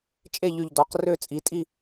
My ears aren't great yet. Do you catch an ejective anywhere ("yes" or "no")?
yes